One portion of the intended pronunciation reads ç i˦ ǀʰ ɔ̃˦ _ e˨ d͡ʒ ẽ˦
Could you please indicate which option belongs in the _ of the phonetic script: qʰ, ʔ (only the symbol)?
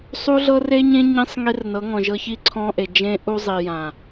ʔ